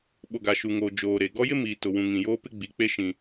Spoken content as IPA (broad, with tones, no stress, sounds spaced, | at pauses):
ɓ o˨ ɡ a˨ ʃ u˨ ŋ oː˨ d͡ʒ oː˨ ɾ e˨ ɡ ɔ˦ j ɪ˦ m iː˨ t ʊ˨ w ũ˨ ŋ ĩ˨ j oː˦ p ɪ˦ ɡ͡b i˨˦ k͡p e˦ ʃ ĩ˦